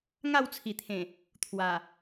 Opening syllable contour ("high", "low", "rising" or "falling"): falling